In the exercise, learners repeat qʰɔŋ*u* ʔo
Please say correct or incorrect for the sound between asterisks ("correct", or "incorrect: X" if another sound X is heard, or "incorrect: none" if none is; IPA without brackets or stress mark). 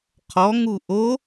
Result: correct